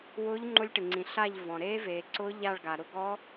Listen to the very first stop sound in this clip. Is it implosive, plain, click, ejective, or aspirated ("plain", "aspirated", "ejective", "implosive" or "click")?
click